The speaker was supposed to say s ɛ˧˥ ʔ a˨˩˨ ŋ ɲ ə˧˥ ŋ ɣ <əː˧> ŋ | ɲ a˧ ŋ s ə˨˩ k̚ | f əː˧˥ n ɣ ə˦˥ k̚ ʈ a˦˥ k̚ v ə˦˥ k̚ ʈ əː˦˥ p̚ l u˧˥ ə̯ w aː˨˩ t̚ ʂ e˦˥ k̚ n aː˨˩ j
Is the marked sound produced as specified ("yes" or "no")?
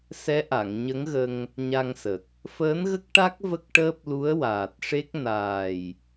no